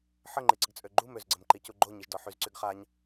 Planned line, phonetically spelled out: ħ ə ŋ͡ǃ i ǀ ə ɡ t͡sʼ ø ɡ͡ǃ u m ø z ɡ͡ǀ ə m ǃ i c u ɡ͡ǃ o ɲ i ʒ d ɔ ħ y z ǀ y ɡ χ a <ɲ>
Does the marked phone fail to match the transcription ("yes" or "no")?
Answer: no